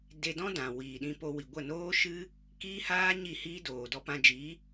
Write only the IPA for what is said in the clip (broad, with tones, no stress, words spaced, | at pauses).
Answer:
de˧dɔ̃˦dã˨ wiː˨ɗĩ˧po˧wi˨ ɡʷə˦˨noː˦ʃɨ˦ | kiː˦haː˦ ɲi˦˨hiː˦doː˨ dɔ˧ pã˧d͡ʒi˨˦